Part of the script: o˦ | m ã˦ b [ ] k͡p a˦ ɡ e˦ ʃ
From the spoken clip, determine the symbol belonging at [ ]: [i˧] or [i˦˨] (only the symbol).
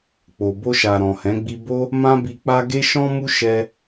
i˧